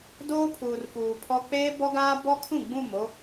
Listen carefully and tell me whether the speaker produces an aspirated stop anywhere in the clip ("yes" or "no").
yes